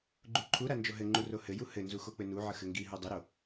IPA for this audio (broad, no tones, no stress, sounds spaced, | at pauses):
ɡ͡ǃ u ǃʰ u ɾ a n d͡ʒ o ɦ ɘ ŋ͡ǃ u r o h ɘ j u h ɘ n z u x o k͡p ɘ n u ʕ ə x ɘ ŋ ɡ i ɦ u dˤ ɘ ɾ o